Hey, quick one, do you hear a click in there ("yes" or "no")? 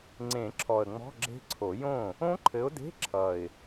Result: yes